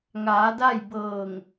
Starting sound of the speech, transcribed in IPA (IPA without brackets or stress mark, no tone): ŋ